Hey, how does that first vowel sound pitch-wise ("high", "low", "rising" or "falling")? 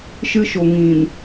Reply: high